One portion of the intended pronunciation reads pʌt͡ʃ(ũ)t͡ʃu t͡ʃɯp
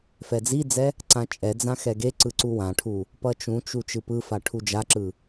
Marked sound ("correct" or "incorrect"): correct